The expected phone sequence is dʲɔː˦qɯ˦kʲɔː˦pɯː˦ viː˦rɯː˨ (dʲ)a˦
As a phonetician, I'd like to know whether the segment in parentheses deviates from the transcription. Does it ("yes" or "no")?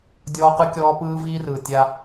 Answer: yes